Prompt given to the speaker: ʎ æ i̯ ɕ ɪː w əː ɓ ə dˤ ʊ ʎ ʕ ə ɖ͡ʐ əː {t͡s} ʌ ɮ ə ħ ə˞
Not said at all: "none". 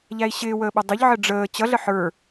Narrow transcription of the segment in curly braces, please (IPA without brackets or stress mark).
t͡ɕ